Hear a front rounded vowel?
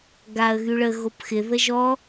yes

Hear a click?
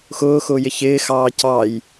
no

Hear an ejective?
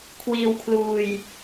no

